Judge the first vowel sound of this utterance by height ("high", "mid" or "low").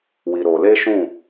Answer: high